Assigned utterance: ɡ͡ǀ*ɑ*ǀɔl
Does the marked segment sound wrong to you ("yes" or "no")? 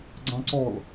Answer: yes